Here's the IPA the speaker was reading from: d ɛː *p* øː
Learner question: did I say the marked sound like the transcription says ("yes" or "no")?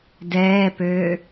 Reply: yes